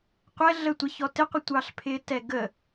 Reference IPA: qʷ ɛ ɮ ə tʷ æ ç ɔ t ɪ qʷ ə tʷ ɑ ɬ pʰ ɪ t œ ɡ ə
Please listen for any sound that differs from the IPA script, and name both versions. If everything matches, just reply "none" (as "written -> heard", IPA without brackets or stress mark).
œ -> ɛ